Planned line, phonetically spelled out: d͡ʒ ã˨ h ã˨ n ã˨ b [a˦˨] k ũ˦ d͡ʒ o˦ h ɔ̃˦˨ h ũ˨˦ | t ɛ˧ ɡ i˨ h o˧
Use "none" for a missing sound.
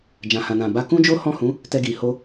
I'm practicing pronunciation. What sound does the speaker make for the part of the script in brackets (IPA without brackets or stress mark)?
a˧